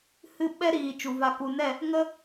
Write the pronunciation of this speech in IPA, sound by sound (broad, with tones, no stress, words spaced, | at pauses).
hɨ˦˨ ɓɛ˦ɾiː˨ t͡ʃu˨va˧ ku˨ nɛ˦˨ | ŋə˦